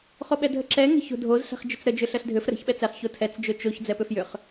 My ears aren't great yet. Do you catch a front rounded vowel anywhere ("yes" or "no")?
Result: yes